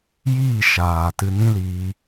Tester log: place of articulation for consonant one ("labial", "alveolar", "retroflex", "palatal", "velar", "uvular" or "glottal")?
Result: palatal